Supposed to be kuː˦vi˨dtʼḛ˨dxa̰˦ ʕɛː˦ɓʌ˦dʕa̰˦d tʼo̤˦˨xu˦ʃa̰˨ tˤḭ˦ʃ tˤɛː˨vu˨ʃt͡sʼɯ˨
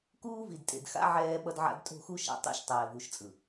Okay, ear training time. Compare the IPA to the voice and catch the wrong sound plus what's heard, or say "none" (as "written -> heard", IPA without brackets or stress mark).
none